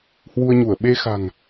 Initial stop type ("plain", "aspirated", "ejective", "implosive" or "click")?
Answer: implosive